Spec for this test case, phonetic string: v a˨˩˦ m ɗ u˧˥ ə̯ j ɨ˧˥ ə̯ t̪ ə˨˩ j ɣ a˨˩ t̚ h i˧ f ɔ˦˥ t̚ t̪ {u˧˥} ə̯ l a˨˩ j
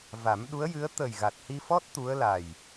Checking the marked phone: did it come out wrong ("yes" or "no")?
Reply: no